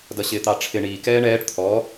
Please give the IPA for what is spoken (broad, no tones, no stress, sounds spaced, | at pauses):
d ʌ ɕ ɪː t̪ ɑ ʈ͡ʂʰ ɪ ɳ i k ɛː ɳ ɛː ʈ t̪ʰ ɔ